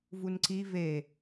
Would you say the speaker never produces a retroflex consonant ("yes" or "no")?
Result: yes